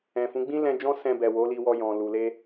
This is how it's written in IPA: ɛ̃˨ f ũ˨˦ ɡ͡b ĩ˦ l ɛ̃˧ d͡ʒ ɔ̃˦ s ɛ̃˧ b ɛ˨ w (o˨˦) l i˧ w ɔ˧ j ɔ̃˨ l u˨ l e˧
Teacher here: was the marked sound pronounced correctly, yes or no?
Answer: yes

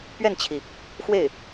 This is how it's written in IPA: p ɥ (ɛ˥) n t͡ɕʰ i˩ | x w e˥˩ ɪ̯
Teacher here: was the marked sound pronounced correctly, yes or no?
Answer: no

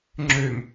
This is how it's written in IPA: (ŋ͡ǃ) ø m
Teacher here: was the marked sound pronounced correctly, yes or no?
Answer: no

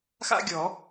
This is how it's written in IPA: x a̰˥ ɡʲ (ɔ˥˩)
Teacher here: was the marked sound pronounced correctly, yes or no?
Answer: no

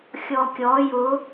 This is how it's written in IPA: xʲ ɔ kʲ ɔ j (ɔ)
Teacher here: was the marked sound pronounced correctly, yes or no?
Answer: no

